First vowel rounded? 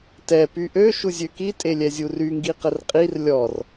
no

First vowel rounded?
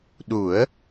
yes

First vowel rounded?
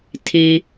no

